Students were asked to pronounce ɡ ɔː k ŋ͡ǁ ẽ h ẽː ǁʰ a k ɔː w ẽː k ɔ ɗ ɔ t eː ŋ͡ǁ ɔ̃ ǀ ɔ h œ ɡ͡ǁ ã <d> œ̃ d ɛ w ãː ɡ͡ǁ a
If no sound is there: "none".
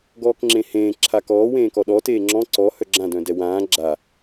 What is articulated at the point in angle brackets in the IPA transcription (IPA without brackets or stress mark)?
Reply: d